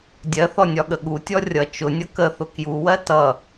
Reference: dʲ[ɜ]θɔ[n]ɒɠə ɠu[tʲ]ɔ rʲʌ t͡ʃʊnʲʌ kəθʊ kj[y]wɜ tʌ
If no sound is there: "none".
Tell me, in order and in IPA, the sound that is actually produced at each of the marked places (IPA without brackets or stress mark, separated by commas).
ɜ, nʲ, tʲ, u